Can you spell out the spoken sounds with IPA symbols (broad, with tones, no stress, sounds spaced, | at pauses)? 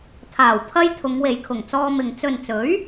t̪ʰ aː˨˩ w pʰ ɐ˥ j t̪ʰ ʊ˨˧ ŋ w e˨ j kʰ ʊ˨˩ ŋ t͡s ɔː˧ m ɪ˨ ŋ t͡s ɵ˨ n t͡s ɵ˨˥ ɥ